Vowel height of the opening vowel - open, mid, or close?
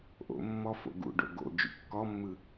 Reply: mid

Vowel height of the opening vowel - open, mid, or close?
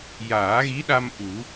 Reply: open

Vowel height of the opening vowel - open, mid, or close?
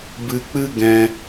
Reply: close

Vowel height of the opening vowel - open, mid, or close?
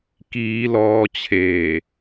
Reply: close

